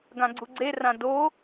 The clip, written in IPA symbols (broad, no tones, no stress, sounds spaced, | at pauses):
ɡ ã ɡ͡ǀ u ɡ͡ǀ e r ã d o